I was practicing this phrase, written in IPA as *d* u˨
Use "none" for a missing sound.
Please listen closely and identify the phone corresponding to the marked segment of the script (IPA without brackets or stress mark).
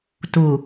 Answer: t